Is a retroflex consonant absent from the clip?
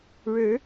no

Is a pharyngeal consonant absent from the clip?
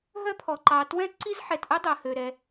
no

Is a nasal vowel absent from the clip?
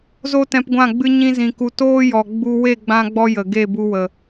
no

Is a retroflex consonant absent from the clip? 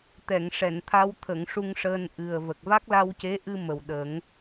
no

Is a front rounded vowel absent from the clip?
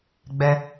yes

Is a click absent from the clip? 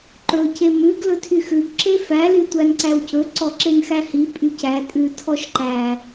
no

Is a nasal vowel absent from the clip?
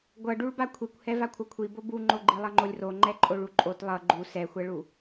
yes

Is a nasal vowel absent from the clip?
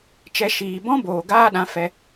no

